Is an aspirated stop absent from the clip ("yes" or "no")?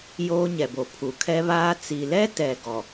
no